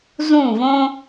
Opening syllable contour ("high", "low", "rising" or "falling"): falling